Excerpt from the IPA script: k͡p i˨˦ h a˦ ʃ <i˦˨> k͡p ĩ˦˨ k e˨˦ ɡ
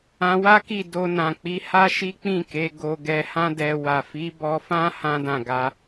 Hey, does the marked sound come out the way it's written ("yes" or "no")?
no